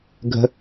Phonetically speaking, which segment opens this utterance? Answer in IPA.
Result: ɡʱ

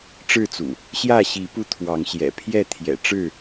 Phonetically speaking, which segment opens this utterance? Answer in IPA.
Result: ʈ͡ʂ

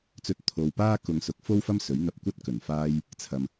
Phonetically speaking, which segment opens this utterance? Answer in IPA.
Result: t͡s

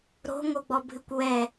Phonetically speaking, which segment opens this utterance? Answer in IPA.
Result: ɾ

